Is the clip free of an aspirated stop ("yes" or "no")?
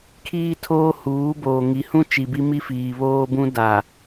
no